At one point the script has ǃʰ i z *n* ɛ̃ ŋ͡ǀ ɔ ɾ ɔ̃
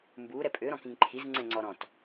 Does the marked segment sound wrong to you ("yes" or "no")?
yes